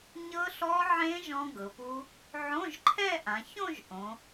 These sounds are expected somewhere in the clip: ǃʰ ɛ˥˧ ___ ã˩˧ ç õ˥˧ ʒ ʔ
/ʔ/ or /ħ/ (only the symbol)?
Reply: ʔ